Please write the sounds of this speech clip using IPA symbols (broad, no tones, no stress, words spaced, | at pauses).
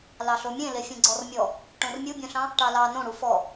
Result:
lɑɬomʲẽ lefʲẽɡ͡ǀɔrmʲɔ | ʈõrmʲubʲõɬɑ̃ | ʈɑlɑ nõɽu fɔ